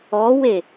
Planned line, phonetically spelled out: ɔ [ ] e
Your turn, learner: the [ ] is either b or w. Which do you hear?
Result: w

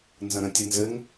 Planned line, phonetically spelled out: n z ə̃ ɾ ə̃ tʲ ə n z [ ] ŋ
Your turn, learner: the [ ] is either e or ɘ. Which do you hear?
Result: ɘ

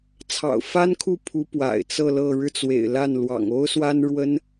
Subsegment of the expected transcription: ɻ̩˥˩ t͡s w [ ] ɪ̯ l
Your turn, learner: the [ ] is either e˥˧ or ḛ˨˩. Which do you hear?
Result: ḛ˨˩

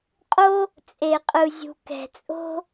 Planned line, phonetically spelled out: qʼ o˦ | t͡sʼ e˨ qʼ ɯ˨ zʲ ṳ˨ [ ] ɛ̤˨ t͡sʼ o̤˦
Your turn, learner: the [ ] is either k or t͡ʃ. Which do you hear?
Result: k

